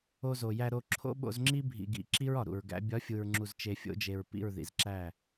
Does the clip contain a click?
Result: yes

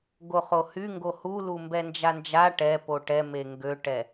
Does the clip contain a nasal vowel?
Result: no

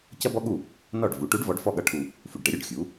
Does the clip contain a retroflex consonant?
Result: yes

